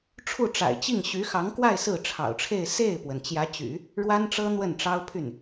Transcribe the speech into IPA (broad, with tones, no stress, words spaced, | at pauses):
ʈ͡ʂʰu˥˩ʈ͡ʂa̰˨˩ɪ̯t͡ɕi˥˩ŋ ɕy˧˥xɑ˧˥ŋkwa˥˧ɪ̯ sɹ̩˥˩ʈ͡ʂʰɑ̰˨˩ʊ̯ʈ͡ʂʰe˥˧ɪ̯ se˥˩ɪ̯pwə˩n t͡ɕjä˧˥t͡ɕy̰˨˩˦ | ɻwa˥nʈ͡ʂɤ˥ n̪wə˥˩nʈ͡ʂɑ˥ʊ̯pʰy˥˩n